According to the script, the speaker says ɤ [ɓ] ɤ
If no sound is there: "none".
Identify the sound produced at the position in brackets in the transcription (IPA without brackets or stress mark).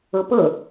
p